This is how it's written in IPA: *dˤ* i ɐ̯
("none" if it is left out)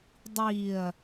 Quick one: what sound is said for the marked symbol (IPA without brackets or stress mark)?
dˤ